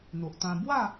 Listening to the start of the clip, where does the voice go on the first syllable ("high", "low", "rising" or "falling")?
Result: low